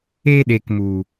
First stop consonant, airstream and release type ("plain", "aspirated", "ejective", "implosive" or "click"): implosive